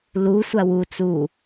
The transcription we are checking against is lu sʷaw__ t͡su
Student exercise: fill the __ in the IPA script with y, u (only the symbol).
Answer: u